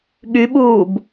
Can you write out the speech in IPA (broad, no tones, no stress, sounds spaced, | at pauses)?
ɠ y ɓ uː b